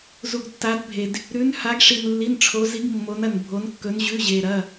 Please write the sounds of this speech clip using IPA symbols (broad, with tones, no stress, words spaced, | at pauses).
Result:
zu˧ɡtːa˧˥dbʱe˧d | ɾʉ˧˥nha˧˥ɡʂi˧n lːi˧˥˧nʈ͡ʂʰo˧˥ zi˧˥ɡ mːo˧˥nɐ˧nbʱo˧˥nkːɵ˧˥n ʑʉ˧˥˧ʑe˧ɾɐ˧˥˧